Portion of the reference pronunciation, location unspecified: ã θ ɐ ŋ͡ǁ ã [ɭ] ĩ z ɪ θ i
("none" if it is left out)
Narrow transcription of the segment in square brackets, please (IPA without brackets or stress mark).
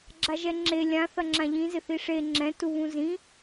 ʎ